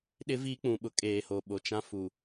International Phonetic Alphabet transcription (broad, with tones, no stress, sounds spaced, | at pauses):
ɗ ɪ˦ v i˦ k͡p ũ˨ ɓ ʊ˨ kʼ eː˨ h o˨ ɓ o˨ t͡ʃ ã˦ f u˨